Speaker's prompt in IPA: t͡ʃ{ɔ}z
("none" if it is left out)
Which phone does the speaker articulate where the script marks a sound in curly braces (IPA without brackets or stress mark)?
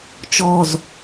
ɔ